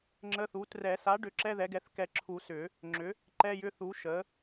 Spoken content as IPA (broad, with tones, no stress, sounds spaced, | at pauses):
ŋ͡ǁ ə˧˥˧ θ u˩˥ t r ɛ˨˩˦ s a˩˥ ɖ ʏ˩˥ ǁ ɛ˧˥˧ ð ɛ˩˥ ɡ ɛ˩˥ θ k ɛ˨˩˦ ǁʰ u˨˩˦ s ʏ˨˩˦ | ŋ͡ǁ ʏ˩˥ | ǃ ɛ˧˥˧ j ʏ˧˥˧ θ u˩˥ ʃ ə˩˥